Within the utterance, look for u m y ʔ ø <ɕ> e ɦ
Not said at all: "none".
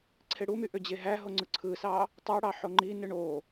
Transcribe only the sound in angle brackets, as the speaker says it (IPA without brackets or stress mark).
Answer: d͡ʑ